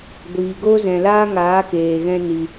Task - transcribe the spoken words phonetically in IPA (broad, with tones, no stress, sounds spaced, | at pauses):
ɡʷ iː˨ ɡ oː˦ z ɛ̃˨ l aː˦ ŋ aː˨˦ k eː˨ ɣ ɛ̃˧ n i˨